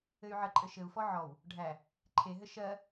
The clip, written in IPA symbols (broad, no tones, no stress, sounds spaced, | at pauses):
ɘ y̯ ʕ ə ǃʼ ɘ ʃ ɘ u̯ f ɔ ʕ ɔ w | ɖʱ æ | ǃʰ e ɦ ɘ ʃ ɜ